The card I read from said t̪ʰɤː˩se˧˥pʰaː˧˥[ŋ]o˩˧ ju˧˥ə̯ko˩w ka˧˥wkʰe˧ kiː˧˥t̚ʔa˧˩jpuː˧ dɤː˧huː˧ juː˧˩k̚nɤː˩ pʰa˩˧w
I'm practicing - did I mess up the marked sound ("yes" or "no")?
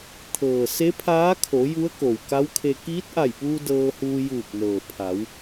yes